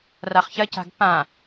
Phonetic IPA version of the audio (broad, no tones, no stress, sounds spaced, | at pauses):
r a χ ç ɐ c a̤ ɡ p ã